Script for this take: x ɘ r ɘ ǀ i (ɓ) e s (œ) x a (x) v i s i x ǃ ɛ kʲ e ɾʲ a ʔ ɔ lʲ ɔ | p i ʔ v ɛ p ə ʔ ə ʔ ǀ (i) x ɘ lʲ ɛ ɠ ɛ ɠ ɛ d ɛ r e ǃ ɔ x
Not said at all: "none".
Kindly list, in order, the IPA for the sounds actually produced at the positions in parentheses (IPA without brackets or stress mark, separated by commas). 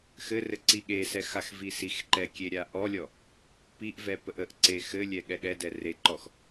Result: ɠ, ɛ, x, e